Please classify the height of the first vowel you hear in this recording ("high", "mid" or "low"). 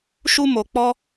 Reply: high